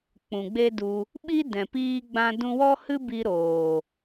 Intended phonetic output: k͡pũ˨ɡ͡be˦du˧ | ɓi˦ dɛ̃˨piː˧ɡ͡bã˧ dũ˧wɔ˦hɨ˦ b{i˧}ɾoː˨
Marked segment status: correct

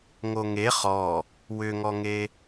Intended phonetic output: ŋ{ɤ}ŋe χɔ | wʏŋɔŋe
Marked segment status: incorrect: o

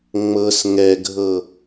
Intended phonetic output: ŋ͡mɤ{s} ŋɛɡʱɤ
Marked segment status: correct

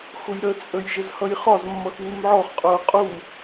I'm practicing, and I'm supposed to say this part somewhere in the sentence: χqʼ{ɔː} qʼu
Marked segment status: incorrect: ʊː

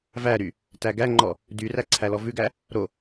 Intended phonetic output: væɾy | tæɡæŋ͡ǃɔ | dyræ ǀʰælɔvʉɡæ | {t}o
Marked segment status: incorrect: ɾ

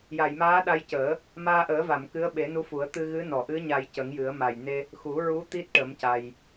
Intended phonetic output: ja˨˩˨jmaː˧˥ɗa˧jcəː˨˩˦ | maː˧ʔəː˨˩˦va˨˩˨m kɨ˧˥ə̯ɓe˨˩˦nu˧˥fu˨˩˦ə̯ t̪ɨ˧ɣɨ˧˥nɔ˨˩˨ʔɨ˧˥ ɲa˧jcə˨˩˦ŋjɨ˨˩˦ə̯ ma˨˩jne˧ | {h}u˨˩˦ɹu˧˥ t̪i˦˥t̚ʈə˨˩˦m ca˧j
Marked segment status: incorrect: x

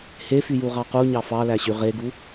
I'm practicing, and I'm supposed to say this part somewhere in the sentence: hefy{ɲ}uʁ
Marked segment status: incorrect: j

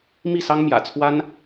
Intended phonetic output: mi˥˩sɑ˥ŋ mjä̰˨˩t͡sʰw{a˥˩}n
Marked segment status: incorrect: a˥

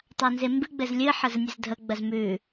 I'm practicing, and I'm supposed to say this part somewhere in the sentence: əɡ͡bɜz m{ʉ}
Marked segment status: correct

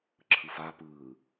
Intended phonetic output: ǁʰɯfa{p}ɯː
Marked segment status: correct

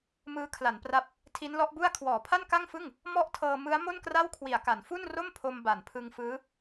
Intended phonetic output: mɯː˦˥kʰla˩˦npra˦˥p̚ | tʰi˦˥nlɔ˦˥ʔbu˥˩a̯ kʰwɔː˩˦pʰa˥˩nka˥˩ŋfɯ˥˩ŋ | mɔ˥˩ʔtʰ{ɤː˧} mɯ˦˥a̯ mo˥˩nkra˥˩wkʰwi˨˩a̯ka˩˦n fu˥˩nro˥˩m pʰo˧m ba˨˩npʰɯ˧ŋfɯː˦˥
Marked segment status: correct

